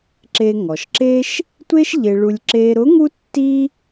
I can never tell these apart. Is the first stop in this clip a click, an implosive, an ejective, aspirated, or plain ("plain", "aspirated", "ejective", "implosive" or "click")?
click